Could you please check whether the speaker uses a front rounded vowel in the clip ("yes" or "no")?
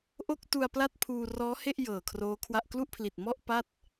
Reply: no